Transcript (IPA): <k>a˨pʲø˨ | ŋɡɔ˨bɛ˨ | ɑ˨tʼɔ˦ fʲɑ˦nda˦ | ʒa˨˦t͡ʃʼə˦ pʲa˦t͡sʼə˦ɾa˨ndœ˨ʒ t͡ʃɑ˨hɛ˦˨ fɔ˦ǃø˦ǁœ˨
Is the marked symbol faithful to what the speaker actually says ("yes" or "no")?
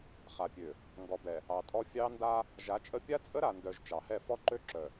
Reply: no